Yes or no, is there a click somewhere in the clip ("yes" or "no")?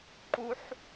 yes